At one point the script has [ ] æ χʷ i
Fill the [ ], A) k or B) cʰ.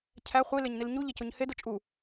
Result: B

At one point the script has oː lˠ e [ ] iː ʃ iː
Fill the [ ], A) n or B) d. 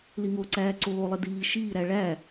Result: B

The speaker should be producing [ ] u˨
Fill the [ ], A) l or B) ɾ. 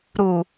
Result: B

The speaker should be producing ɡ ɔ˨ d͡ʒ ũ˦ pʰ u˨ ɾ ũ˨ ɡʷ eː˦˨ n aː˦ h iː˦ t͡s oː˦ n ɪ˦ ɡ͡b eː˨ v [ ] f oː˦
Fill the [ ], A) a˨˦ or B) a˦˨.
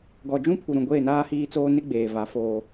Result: A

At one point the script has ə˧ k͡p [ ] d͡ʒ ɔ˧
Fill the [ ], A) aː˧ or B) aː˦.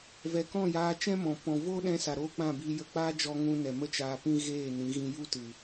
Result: B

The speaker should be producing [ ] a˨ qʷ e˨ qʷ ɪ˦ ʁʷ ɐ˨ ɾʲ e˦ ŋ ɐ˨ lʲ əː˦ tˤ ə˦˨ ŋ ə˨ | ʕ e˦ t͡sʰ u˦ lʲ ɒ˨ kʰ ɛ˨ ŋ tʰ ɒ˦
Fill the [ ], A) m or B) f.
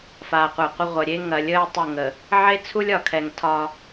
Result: B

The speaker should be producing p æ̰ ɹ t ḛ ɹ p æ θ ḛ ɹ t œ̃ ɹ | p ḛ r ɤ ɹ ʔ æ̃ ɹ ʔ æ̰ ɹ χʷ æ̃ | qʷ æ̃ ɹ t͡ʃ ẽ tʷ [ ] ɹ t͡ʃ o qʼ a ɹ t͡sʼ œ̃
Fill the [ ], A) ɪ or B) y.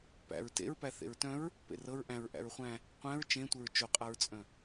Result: A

